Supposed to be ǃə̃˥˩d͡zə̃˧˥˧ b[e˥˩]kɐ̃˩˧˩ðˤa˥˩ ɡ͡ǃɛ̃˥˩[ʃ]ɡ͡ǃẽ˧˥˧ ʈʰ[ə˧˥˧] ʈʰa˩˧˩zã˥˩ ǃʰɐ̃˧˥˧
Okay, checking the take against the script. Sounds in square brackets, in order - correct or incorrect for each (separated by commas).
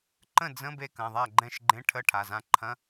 correct, correct, correct